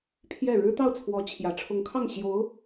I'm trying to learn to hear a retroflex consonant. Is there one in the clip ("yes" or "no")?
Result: yes